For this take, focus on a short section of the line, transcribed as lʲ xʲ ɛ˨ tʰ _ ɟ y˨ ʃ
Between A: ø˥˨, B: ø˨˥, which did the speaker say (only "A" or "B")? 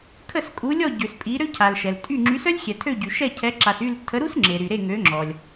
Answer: A